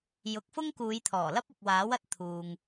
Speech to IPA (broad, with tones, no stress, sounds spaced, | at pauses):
j ʊ˨˥ k̚ f ʊ˥ ŋ k uː˨˧ j t̪ʰ ɔː˨˩ l ɐ˥ p̚ ʊ˨ k̚ w aː˨˥ w ɐ˨˥ t̚ t̪ʰ uː˧ ŋ